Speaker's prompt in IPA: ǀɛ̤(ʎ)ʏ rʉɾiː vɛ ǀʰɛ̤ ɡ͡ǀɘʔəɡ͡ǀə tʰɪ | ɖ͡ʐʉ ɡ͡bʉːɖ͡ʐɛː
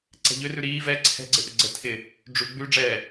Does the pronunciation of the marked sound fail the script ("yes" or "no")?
no